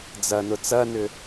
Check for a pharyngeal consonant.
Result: absent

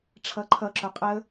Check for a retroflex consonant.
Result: present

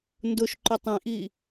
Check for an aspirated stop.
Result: absent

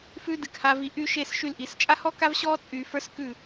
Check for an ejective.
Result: present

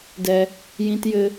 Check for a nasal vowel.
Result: present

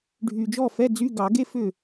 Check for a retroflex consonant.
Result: present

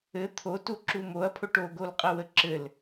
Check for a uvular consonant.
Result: present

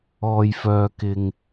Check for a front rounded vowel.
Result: present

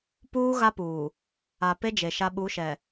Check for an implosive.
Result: present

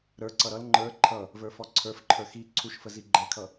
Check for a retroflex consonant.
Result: absent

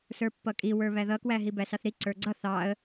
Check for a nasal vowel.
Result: absent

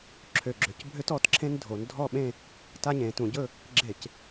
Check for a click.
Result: present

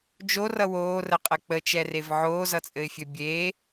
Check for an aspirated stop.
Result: absent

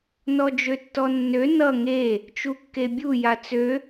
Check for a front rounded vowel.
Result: present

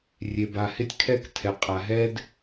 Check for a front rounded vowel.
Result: absent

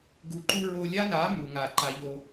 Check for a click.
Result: present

